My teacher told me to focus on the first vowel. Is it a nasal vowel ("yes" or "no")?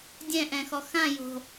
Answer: yes